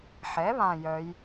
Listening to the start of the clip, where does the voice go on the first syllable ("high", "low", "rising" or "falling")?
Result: rising